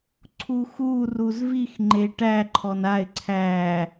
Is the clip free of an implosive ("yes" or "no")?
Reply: yes